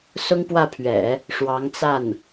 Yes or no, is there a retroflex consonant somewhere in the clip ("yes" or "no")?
yes